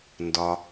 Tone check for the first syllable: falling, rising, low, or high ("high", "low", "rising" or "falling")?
low